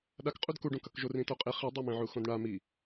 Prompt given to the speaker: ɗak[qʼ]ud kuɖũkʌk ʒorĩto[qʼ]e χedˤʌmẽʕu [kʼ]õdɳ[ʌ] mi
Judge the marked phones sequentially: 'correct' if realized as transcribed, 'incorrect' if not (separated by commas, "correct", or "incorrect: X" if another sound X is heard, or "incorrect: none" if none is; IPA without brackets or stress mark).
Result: correct, correct, incorrect: x, incorrect: a